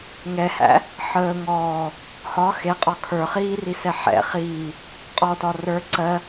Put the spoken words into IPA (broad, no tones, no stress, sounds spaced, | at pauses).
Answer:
ŋ ɛ h æ̰ | ħ əː ŋ ɔː | h ɒ x e qʼ ɒ kʰ ə˞ χ iː r i s ɛ ħ ɛ̰ χ iː | qʼ ɔ t ɒ r ə˞ ǀ ɜ